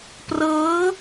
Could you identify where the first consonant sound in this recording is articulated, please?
labial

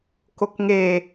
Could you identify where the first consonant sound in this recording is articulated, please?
velar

